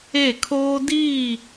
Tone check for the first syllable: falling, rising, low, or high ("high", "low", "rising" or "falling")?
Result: falling